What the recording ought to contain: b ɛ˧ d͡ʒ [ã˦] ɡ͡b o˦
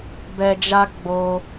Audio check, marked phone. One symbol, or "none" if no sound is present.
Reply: a˦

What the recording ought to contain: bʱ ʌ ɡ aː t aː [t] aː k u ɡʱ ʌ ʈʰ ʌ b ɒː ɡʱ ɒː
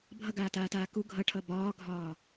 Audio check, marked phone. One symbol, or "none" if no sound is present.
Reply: t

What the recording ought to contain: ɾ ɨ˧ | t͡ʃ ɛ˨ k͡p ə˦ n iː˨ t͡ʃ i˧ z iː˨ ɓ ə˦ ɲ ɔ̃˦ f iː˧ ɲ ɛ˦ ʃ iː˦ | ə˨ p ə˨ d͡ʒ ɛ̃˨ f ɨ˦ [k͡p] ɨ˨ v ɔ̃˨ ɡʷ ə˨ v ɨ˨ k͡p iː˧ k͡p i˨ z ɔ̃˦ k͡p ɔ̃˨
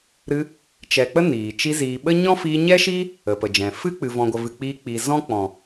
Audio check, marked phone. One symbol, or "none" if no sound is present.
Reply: k͡p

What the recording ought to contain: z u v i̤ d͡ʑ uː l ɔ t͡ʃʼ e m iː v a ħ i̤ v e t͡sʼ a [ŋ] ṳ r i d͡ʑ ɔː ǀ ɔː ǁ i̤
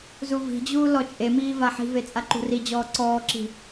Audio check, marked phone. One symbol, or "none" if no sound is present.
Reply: ǃ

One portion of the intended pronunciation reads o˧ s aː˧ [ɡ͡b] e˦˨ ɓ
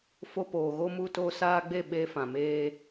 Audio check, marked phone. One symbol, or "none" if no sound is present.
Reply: ɡ͡b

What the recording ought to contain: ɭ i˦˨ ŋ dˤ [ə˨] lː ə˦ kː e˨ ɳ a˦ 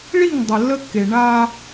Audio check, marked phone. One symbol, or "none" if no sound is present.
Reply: ə˨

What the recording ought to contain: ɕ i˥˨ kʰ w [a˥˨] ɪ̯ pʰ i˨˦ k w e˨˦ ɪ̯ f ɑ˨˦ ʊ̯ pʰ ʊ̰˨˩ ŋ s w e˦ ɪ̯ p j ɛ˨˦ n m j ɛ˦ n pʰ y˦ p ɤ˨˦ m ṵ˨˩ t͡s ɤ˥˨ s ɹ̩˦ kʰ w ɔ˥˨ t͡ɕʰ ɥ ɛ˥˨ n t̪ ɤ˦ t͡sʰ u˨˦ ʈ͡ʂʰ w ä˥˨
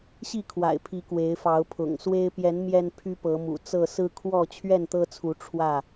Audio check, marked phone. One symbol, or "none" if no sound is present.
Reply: a̰˨˩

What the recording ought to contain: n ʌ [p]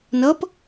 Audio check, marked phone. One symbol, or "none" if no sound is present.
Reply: p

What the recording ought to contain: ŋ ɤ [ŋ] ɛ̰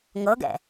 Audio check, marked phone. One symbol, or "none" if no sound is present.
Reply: ɡ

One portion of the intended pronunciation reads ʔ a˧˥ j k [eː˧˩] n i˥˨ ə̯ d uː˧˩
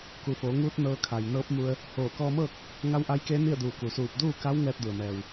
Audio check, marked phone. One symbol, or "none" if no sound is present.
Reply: eː˧˥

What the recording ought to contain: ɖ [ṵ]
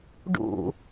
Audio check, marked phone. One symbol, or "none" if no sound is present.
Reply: ṵ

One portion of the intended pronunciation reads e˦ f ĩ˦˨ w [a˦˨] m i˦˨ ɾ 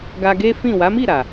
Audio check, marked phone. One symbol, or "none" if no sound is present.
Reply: a˨˦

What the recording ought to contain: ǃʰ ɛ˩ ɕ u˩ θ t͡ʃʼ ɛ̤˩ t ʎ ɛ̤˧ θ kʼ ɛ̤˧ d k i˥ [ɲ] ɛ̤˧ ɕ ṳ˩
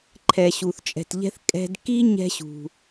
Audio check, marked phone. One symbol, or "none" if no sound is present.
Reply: ɲ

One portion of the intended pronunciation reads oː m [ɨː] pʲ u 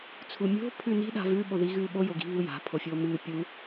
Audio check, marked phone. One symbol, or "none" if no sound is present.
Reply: ɨː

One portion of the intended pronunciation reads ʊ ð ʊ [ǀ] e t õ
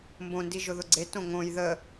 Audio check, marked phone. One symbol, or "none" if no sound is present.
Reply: ɡ͡ǀ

